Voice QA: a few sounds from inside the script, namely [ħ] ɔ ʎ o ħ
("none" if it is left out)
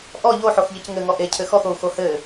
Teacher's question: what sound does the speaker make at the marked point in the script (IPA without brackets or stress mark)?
ʔ